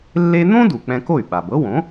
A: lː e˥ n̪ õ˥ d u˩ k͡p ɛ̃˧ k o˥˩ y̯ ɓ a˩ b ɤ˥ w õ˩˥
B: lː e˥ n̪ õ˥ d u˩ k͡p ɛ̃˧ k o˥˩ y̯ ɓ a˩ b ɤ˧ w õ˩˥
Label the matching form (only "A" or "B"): A